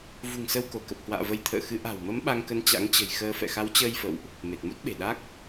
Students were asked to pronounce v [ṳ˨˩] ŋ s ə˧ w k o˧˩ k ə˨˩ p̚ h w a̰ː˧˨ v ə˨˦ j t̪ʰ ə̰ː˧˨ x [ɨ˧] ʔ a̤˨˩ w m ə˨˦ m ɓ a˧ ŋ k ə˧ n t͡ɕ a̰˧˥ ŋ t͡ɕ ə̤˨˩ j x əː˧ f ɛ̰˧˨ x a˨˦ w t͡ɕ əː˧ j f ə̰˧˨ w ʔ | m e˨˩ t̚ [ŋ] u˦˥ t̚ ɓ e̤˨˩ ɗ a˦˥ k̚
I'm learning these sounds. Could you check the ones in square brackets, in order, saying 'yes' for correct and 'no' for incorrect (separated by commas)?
yes, no, no